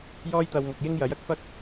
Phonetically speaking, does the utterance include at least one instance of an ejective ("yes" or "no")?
no